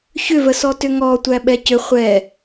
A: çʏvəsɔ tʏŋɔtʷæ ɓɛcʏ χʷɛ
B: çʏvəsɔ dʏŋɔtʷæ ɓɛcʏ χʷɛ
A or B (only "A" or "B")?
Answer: A